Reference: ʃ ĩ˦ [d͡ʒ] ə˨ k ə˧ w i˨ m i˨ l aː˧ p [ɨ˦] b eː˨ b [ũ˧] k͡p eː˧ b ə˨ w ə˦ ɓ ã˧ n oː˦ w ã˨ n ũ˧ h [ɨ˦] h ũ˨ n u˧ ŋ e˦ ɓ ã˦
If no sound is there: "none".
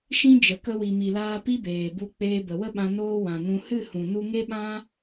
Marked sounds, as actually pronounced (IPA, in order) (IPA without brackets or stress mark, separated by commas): d͡ʒ, i˦, u˧, ɨ˦˨